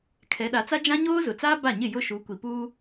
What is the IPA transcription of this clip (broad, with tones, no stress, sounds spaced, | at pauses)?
kʰ ɛ˨˦ ɗ a˨˦ t͡s a˦ d͡ʒ ã˦ ɲ oː˦ z ʊ˨ t͡s aː˦ b a˦˨ ɲ ɪ˦˨ j ʊ˦˨ ʃ u˨˦ kʷ i˨ p uː˦